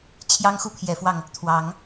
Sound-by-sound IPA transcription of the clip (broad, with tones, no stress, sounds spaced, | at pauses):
t͡ɕʰ j ɑ˦ ŋ x u˦ pʰ j ɛ˨˦ f w ɑ˧ ŋ | t̪ʰ w ɑ˨˦ ŋ